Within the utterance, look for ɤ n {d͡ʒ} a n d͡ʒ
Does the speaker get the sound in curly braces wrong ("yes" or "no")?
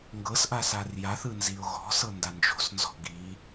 yes